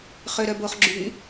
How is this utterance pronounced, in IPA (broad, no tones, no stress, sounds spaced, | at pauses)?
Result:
χ ø ɾ œ b o χ ɡ͡ǁ y